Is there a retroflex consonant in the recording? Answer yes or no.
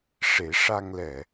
yes